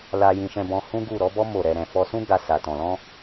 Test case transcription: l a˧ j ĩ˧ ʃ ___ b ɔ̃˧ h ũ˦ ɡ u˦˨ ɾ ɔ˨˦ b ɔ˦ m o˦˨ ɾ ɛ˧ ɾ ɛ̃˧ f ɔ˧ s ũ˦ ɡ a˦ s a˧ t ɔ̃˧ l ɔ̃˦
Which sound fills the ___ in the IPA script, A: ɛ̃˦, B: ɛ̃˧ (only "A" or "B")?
B